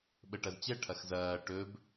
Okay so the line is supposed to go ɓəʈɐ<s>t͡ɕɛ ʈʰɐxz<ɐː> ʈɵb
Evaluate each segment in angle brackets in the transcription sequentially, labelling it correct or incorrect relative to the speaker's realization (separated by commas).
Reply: incorrect, correct